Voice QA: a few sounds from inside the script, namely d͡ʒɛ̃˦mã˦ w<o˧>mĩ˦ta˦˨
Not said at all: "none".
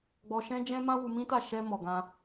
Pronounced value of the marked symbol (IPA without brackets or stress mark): u˧